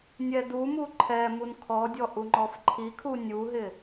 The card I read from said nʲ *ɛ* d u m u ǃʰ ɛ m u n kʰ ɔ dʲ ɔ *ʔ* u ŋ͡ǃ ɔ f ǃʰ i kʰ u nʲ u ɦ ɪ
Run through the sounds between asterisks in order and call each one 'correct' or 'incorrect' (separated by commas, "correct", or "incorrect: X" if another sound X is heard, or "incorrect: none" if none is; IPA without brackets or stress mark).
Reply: correct, correct